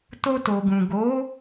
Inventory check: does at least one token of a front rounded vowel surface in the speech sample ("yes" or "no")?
no